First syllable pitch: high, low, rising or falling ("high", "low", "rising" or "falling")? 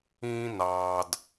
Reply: high